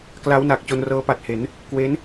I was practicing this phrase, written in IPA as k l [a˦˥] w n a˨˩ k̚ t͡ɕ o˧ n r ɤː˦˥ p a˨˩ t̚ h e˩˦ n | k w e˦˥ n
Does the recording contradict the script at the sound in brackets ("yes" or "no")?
no